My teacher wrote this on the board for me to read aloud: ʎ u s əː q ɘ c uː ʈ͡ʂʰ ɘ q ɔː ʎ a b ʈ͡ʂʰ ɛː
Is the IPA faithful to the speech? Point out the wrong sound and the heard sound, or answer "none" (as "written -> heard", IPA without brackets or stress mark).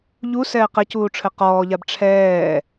əː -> ɛː